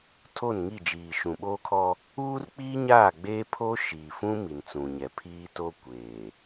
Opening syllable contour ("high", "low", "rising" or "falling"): falling